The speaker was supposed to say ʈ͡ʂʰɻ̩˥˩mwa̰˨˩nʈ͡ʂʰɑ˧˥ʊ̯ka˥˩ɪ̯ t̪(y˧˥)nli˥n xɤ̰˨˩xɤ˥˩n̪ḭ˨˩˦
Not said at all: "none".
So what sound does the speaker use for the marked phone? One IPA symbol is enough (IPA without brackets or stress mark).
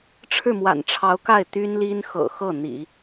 y˥